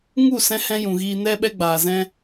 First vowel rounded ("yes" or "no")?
yes